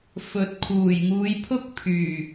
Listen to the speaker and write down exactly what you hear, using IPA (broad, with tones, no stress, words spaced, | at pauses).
fɵ˨t̚ kʰuː˨˩jŋuː˨˧jpʰʊ˥k̚ pʰyː˨˩